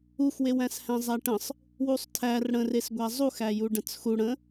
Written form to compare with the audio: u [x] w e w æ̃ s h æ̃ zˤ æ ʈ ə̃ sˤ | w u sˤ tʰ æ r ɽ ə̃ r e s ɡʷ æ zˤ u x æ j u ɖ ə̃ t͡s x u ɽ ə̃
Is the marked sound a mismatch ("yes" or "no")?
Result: no